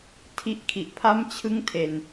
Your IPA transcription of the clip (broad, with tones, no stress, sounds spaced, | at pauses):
tʰ i˦˥ ʔ kʰ i˨˩ ʔ pʰ a˥˩ m t͡ɕʰ ɯ˥˩ ŋ tʰ e˧ n